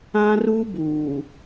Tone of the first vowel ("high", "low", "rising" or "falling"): high